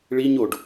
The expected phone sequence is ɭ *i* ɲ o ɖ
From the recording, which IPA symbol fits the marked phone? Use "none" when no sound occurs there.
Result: i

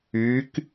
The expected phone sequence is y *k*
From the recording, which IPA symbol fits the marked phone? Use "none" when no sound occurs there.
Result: k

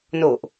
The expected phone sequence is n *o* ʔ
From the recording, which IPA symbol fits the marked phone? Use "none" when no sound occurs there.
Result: o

